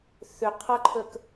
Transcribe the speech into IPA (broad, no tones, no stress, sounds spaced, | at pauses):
θ ʏ qʰ ʌ ǃʰ ə k